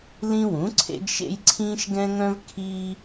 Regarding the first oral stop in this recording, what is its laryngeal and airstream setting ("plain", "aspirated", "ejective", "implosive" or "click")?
click